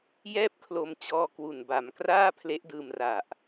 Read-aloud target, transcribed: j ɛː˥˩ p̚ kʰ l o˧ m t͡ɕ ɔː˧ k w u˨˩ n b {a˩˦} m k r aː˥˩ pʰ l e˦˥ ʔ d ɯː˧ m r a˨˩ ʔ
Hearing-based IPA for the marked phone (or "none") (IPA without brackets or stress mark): a˩˦